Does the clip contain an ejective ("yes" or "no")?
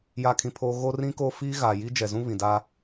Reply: no